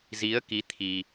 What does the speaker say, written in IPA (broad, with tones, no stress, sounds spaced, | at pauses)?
z i˨˦ ə̯ k i˨˦ t̪ʰ i˧